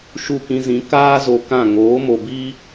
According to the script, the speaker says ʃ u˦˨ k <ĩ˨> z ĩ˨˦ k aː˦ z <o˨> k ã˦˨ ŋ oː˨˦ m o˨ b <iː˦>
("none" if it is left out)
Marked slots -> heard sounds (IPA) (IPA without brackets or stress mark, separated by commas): ĩ˧, o˧, iː˦